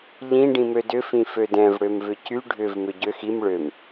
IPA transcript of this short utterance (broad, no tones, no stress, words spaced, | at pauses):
ʎĩ ɖĩmødʏ fĩfødɛ̃v ɽømvʏcy ɖʱʏv mʏɟøx im ɭøm